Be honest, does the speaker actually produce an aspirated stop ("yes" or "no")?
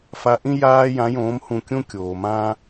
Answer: no